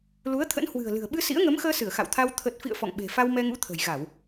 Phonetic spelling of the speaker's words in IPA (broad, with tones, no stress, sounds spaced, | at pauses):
l u˨˦ ə̯ t̪ʰ ə̰˧˥ n h w ɨ̤˨˩ ə̯ l ɨ̤˨˩ ə̯ ɓ ɨ˧ s ḭ˧˥ ə̯ ŋ ə˨˦ m x əː˧ s ɨ˧˩ ə̯ x a̰˧˨ w t̪ʰ a˧ w t̪ʰ ə˨˩ t̚ f ḭ˧˨ ə̯ f ɔ̰˧˨ ŋ ɓ e̤˨˩ f a˧ w m ɛ˧ ŋ ṵ˧˥ t̪ʰ ə̤˨˩ j ɣ a˧˩˨ w